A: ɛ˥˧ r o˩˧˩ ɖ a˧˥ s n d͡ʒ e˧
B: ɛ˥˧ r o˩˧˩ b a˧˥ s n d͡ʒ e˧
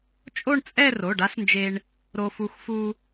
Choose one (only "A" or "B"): A